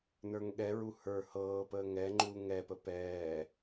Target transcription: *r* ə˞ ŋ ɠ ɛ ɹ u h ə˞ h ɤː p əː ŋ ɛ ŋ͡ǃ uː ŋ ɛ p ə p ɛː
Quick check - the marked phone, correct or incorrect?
incorrect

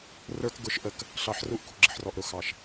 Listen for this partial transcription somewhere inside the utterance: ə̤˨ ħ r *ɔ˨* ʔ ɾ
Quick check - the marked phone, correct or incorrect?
correct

